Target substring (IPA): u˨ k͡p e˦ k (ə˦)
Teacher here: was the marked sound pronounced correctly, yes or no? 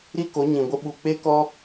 no